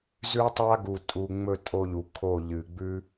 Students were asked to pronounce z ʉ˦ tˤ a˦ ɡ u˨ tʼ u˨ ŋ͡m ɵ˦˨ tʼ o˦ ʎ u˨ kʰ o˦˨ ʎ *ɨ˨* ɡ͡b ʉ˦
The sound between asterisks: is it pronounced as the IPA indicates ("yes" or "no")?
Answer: yes